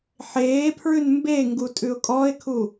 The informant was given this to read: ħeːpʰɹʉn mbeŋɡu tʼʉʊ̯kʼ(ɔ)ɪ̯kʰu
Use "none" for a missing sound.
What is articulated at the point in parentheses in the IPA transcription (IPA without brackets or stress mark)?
ɔ